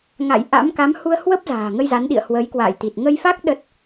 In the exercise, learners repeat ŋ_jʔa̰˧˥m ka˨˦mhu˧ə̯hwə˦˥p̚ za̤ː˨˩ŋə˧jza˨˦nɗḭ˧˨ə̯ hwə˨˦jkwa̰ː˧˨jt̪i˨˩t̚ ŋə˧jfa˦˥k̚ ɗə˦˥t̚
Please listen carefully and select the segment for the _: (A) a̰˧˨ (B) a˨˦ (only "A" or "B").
A